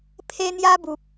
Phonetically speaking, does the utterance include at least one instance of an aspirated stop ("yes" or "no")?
yes